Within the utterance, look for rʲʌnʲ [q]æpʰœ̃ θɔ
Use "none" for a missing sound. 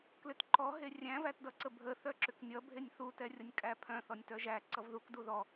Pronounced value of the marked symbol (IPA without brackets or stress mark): kʼ